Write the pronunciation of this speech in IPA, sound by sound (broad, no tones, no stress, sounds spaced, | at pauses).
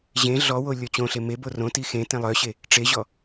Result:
ʑ ẽ ɮ ɔ w o lʲ ɔ t͡ɕ õ ɬ e m e b o r õ t i x ẽ t ẽ lˠ œ ɕ e | ʈ͡ʂ e ʑ ɔ